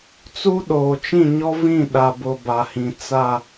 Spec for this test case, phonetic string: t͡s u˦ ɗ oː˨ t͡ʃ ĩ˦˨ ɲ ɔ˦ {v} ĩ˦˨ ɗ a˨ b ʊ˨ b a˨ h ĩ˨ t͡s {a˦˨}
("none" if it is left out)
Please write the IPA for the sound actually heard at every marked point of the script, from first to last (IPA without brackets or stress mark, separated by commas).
v, a˦˨